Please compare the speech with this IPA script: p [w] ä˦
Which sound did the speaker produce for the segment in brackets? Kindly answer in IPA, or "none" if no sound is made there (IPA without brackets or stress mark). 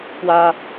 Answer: w